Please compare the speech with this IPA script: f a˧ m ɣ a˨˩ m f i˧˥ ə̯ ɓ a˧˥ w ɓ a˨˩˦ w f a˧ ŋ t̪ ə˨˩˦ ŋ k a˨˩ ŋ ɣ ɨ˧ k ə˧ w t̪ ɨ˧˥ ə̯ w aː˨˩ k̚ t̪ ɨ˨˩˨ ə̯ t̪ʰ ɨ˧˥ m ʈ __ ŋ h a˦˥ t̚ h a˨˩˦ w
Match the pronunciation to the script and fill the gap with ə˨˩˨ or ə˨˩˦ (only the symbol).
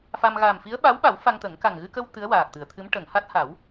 ə˨˩˨